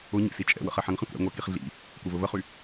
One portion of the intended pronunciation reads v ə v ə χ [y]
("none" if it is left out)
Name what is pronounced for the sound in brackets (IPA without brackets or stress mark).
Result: y